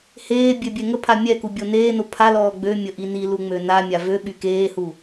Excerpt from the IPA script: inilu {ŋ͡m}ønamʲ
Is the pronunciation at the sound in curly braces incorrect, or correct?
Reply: correct